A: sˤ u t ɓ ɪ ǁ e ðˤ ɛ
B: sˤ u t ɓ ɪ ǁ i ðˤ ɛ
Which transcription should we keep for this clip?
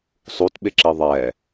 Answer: B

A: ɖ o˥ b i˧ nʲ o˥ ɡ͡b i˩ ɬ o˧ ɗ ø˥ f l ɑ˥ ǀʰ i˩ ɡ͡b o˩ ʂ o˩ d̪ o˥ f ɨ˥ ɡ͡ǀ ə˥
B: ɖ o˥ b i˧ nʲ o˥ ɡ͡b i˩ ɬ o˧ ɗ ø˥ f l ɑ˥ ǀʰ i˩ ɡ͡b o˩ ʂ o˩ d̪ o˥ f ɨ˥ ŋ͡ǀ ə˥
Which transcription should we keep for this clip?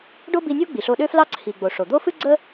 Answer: A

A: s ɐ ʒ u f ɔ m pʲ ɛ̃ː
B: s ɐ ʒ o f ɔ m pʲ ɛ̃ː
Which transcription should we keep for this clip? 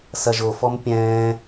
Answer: B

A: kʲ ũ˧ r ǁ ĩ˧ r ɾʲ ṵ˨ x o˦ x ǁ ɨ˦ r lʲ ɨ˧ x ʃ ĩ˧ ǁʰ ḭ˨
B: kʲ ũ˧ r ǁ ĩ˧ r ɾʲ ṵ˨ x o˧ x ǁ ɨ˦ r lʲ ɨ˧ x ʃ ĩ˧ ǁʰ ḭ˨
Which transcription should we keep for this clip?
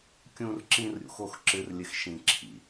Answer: B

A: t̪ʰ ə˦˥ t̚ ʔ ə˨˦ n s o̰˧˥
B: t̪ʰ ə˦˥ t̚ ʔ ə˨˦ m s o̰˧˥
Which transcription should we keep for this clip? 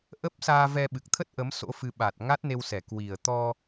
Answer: B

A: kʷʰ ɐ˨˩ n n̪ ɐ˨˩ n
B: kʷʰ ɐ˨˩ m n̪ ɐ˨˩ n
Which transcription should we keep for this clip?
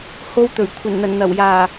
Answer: A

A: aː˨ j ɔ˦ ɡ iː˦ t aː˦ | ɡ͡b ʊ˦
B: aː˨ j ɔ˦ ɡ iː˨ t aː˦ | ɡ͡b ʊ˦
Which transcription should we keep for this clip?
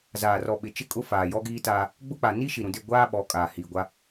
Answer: A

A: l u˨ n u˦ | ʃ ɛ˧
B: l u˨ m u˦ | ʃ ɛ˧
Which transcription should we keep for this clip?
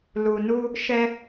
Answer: A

